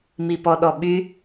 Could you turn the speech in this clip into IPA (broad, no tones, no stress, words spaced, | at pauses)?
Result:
mipɔɗɔɓy